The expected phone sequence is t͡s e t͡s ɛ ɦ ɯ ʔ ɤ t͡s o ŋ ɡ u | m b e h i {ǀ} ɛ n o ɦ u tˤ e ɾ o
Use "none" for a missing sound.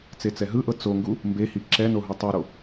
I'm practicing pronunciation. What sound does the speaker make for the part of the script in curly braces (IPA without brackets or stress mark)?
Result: ǁ